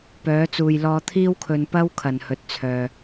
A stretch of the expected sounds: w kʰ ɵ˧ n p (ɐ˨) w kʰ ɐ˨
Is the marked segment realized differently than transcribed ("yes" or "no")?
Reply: yes